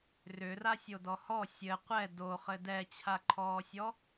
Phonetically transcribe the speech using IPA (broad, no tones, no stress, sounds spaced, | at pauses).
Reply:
r ʏ r a sʲ o d ɔ h ɔ sʲ ɘ qʷ ɛ d o χ ɘ d ɛ t͡ɕʰ a ǃʰ ɔː sʲ ɔ